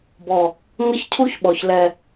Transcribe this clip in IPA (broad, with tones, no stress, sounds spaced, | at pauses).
b ɔ˨ | ŋ ɐ˦ ç cʰ u˦ ç ɓ ɔ˨ ç l ɛ˨